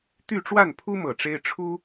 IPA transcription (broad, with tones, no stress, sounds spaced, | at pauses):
t̪ y˥˧ ʈ͡ʂ w a˥˩ n pʰ u˥ m ɤ˨˩ ʈ͡ʂ e˥ ɪ̯ ʈ͡ʂʰ u˥